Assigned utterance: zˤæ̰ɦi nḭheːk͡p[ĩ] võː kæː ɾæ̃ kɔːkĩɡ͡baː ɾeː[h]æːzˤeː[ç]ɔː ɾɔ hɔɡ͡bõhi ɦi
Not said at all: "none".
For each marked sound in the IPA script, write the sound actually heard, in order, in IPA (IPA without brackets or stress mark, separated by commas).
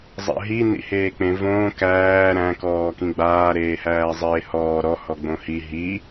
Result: ẽ, h, h